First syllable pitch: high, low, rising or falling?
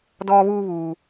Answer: high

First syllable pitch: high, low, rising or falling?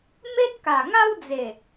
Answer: high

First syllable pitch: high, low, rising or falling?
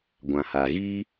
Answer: low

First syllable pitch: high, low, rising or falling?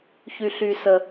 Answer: high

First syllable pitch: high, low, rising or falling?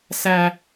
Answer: low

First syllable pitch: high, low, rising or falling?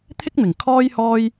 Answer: high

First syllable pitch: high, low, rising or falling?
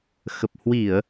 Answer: low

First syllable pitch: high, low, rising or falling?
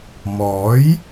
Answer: rising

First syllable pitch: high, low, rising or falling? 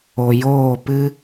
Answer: low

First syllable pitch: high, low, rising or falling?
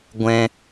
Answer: high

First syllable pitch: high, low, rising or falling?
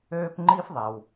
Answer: high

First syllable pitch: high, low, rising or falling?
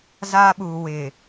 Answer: high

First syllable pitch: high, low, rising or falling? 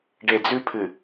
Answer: low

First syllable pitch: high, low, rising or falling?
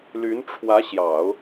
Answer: rising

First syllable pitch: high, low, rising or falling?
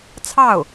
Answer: falling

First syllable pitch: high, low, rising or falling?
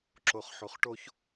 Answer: low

